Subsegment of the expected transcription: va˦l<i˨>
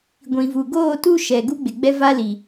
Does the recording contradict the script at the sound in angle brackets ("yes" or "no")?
no